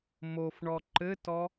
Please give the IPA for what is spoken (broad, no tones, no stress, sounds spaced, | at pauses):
m o f ɳ ɔ ǃ ɘ t ɔ